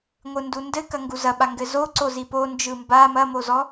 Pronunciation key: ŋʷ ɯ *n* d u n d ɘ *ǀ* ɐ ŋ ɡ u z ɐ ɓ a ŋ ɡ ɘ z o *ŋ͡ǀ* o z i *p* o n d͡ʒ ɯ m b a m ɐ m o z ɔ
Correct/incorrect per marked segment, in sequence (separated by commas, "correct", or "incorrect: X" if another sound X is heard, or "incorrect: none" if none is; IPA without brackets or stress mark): correct, incorrect: k, incorrect: ǀ, correct